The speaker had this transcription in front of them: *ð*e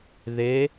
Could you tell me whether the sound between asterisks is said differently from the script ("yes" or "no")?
no